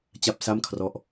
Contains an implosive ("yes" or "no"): no